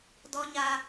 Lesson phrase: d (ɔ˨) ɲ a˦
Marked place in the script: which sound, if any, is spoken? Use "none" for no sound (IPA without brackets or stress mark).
ɔ˦